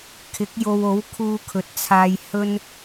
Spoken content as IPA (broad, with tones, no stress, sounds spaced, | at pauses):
kʰ ɪ˨˥ k̚ j o˧ w o˨˥ w kʰ uː˧ kʰ ɵ˨ t̚ t͡sʰ aː˧ j h ɵ˥ n